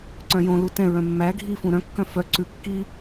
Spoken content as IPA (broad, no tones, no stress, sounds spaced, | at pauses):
ǀ œ̃ j õ l u t ɛ̃ ɹ œ̃ mː æ ɡʱ i f ũ ɾ œ̃ kː œ̃ f œ ǀ ʉ kː i